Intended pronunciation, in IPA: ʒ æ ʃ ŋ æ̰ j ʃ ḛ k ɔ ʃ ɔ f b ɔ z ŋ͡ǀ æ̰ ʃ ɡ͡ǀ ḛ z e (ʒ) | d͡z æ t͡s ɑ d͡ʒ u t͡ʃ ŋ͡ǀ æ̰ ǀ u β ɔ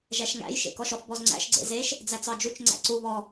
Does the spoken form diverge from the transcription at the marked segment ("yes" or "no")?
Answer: yes